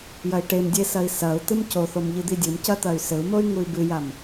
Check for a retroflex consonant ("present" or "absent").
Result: present